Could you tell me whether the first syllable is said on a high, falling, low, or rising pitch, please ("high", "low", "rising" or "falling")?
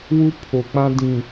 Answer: high